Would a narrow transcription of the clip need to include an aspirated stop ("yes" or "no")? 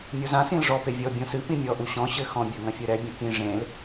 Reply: no